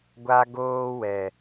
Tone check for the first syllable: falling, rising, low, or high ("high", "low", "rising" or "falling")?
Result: high